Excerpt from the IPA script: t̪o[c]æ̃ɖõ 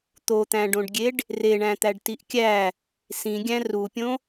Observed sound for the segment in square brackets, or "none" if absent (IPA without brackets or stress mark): t̪